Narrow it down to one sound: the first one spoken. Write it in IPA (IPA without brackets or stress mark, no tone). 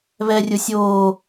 β